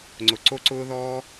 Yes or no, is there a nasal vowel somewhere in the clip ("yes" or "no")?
no